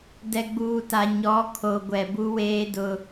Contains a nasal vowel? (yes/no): no